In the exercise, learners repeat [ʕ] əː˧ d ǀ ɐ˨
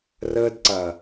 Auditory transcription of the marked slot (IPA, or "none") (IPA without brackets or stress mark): r